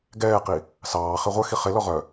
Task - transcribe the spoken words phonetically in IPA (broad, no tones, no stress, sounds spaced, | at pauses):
ɡ ɛː q i | s ɑː χ e ʁʷ œ x i χ e l ɔ ʁ œ